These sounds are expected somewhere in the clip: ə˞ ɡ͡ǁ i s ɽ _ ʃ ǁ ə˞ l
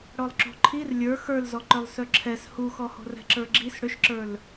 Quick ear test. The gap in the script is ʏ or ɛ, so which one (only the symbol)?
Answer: ʏ